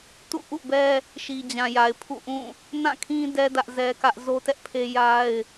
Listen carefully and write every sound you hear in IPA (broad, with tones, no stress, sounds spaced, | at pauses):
t ṵ˦˨ ʔ ṵ˦˨ b ɛ˦ | ʃ i˨ d͡ʑ ã˨ j a˨ ɪ̯ pʰ ṵ˦˨ ʔ ũ˦˨ | n ã˦˨ kʰ ĩ˦ d ɛ˦ d ä˦ ʔ z ɛ˦ k ä˦ ʔ z o˦ t ɛ˦ ʔ pʰ e˦ j a˦ ɪ̯